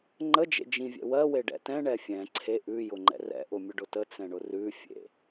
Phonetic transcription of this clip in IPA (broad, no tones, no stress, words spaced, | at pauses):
ŋ͡ǃəd͡ʒḛ d͡ʒĩvʲɛ̰ wɜweɖɛ̰ tɛ̃ɳɛ fʲɛ̃ ǀʰe ʔʉjʊŋ͡ǃɛ̰ rɛ̰ʔʊmʲʊɖʊ tət͡sɛ̃ɳʊ rʉfʲḛ